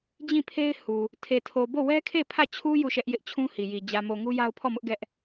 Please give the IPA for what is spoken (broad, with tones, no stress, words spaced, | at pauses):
d͡ʑĩ˦˨pʰe˦ɪ̯ hu˨ | tʰe˨tʰo˨ bo˦˨wɛ˦kʰe˦˨ pʰä˦˨t͡ɕʰu˦ ju˦˨ʃɛ˦ʔ jɪ˦ʔt͡ɕʰũ˦ hi˨ji˨ d͡ʑä˨mo˨ ŋu˦ja˦ʊ̯pʰɔ˦˨mʊ˦ʔ ɡɛ˦ʔ